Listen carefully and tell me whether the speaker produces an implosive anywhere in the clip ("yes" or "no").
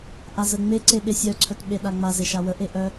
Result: yes